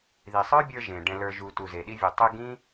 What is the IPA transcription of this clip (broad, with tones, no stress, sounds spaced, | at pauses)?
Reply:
ð i˨ sˤ ə˞˦ bʲ ə˞˧ ʒ ẽ˨ ɖ ɛ̃˨ l ə˞˨ ʒ u˨ t u˨ z e˨ ɗ i˧ vʲ u˨ tˤ e˧ ɡ ĩ˦